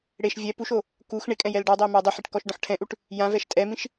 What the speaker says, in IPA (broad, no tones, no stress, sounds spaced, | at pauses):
ɽ e ʃ vʲ ɛ p u ʃ o | k u x ɳ ɪ kʼ ɛ̃ j ɛ l ɖ ɔ dˤ e m a dˤ u ħ e ʈ k ɔ ʃ ɖ ɔ̃ ħ ʈʰ ɛ̃ ʔ u ʈ | j ã v ɛ ʃ tʼ ɛ m ĩ ʃ